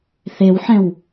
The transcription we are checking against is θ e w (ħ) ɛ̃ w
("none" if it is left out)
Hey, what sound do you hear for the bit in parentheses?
ħ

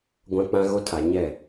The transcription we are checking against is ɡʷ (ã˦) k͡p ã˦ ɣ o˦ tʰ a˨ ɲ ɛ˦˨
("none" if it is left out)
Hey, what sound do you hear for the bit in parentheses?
ã˦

